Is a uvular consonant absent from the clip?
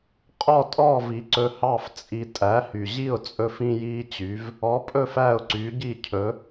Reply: no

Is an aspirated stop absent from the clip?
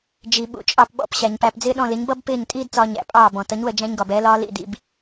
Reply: yes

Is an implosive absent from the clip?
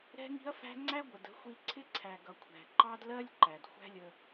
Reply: yes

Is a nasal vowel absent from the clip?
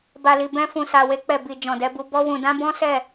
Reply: no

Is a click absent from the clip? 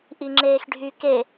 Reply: no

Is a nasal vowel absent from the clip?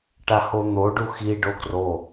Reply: yes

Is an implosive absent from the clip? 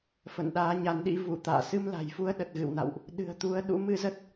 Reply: no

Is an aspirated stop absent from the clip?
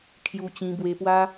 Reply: no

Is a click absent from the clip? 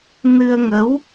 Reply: yes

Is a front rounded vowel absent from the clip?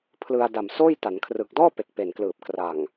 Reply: yes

